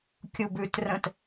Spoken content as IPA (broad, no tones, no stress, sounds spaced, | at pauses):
kʲ u b ʉ t r ə̃ t